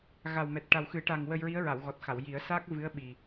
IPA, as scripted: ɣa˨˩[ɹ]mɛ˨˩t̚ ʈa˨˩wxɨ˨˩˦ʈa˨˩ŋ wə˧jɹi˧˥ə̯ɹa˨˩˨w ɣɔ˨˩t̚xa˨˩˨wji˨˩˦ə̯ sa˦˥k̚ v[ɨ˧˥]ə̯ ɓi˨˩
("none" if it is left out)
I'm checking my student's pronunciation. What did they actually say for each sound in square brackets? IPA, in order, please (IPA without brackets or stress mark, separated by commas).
w, ɨ˧˥